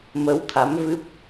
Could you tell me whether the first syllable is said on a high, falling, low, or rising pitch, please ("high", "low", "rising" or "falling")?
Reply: rising